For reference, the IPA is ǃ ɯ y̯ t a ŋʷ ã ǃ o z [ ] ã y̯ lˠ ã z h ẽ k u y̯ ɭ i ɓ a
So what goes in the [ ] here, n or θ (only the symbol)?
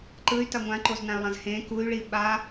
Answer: n